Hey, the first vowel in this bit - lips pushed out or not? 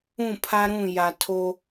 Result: yes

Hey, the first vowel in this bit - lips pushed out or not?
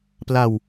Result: no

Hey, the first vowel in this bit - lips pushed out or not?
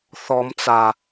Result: yes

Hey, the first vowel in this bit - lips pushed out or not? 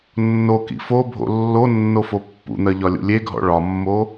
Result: yes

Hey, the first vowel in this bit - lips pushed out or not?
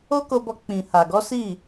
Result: yes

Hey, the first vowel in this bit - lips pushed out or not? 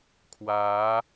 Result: no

